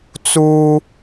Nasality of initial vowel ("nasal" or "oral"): oral